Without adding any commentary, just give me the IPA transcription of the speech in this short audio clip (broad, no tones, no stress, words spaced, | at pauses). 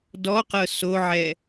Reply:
dɔqɤ soʕɛ